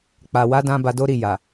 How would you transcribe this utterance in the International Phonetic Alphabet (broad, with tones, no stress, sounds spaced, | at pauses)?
k͡p a˨ w a˨˦ d ã˦ b a˧ d o˦ ɾ i˦˨ j a˨